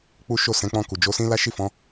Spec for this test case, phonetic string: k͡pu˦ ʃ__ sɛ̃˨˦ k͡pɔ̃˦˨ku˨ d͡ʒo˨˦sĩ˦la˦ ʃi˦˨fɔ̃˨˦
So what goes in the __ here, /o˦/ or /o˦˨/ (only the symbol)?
o˦˨